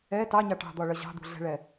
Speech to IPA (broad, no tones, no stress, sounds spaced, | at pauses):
ɛ t ɑ ɲ ɑ ʈ ɑ̤ d̪ ɒ ɭ ʌ ʑ ɑ̤ d̪ ṳ ɮ ɛ̤ ɭ ɛ